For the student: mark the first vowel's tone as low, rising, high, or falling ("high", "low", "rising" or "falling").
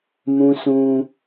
high